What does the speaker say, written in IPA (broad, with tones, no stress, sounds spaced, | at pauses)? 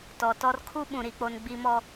t ɔ˨ t ɔ˦ r kʰ u˦ ɓ ũ˨ ɾ i˨ k͡p o˨ n ɡ͡b i˨ m ɔ˨